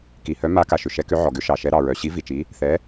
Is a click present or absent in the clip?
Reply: absent